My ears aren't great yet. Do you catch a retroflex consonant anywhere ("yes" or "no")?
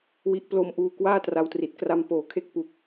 no